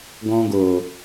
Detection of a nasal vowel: present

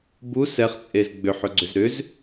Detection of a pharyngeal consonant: present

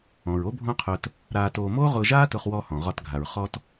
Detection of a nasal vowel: present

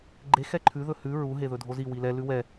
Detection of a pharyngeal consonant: absent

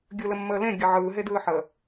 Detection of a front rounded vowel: absent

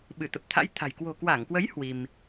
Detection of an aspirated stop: present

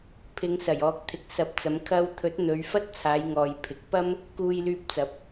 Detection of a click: absent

